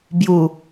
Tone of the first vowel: low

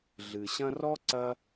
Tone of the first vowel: low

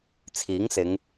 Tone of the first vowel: rising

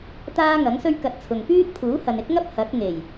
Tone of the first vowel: high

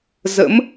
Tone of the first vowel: rising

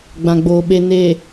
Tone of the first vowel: low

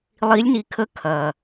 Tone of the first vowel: rising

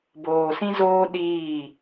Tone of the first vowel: low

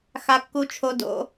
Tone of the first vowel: low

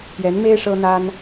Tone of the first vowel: rising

